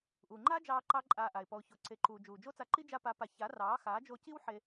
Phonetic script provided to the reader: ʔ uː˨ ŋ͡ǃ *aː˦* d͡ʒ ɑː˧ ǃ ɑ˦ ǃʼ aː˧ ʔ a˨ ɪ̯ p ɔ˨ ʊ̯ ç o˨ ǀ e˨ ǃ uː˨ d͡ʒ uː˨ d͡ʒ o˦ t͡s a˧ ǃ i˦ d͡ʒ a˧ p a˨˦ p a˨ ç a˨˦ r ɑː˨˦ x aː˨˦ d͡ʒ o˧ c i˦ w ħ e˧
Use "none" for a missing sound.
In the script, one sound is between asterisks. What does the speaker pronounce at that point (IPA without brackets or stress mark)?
aː˦